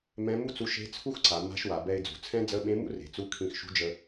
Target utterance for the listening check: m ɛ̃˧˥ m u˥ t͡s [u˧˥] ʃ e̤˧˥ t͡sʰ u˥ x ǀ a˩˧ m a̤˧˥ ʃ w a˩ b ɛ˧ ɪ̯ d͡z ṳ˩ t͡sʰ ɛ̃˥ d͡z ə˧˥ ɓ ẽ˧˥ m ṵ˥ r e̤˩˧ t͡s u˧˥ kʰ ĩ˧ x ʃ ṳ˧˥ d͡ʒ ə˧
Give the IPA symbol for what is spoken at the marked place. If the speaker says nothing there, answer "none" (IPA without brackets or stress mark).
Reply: u˧˥